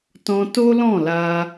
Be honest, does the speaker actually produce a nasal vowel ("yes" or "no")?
yes